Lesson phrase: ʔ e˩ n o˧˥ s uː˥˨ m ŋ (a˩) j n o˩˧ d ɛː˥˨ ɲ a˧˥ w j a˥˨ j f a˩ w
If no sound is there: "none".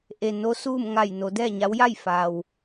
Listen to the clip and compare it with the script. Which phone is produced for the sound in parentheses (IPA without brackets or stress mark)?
a˧˩